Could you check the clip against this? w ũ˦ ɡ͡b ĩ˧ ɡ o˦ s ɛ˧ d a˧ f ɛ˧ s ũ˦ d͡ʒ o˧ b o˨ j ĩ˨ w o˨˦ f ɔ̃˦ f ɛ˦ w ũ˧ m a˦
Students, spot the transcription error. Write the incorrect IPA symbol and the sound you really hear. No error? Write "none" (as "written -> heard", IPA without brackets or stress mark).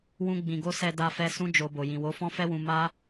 none